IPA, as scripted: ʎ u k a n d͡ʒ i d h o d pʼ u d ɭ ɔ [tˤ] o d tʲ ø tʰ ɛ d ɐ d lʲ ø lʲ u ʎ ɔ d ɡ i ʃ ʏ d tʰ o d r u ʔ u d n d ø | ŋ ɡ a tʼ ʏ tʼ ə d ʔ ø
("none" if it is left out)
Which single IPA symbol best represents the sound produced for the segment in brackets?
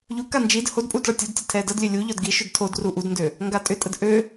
tʲ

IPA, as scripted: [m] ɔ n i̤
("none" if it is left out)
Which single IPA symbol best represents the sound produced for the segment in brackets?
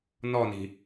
n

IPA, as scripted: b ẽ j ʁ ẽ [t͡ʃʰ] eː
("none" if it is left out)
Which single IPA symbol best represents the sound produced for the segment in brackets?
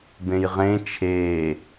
t͡ʃʰ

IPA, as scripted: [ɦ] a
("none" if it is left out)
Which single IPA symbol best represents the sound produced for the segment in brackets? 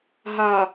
ɦ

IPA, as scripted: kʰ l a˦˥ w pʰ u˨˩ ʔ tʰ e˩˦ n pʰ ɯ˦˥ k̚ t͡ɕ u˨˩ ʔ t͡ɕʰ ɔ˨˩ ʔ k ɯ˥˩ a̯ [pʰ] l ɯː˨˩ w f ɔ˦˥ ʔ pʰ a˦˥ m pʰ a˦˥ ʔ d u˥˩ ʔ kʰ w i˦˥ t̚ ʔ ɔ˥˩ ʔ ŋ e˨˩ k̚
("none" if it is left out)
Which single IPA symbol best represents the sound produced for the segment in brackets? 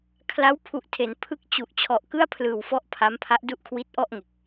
pʰ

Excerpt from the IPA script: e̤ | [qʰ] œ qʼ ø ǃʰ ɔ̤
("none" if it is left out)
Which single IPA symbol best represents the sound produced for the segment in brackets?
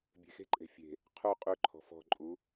qʰ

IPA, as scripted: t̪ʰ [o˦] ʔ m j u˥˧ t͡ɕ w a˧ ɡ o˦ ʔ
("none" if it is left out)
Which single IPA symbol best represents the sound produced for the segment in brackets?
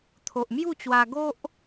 o˨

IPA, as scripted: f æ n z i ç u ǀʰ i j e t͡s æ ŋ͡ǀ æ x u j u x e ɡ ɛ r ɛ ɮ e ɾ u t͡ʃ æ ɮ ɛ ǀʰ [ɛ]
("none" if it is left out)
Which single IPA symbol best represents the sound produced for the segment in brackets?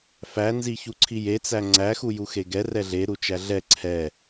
ɛ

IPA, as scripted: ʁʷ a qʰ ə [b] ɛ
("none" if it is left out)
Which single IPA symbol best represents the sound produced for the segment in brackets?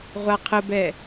b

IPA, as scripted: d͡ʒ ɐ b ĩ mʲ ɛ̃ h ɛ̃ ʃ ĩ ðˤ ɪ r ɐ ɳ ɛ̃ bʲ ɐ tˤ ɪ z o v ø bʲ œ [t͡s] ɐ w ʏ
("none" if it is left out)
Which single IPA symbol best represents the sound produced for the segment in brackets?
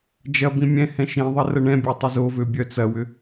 t͡s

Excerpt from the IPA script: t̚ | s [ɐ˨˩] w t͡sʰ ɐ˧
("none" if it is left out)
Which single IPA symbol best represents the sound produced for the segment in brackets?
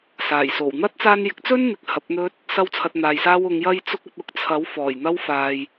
ɐ˥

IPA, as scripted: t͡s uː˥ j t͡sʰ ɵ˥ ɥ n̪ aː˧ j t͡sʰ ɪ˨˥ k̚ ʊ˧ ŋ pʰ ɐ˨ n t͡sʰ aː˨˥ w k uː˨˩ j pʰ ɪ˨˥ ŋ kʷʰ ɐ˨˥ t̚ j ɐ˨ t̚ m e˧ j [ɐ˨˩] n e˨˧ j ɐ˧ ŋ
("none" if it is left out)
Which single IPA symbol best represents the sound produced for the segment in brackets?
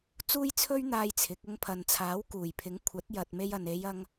ɐ˨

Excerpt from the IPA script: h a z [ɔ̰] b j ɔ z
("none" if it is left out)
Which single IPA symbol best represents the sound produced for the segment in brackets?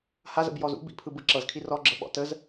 ə̰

